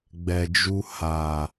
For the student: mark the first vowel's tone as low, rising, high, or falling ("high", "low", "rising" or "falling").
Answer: low